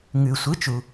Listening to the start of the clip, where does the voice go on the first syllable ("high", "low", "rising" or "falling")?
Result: low